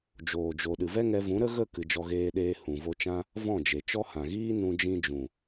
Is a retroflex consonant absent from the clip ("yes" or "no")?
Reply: yes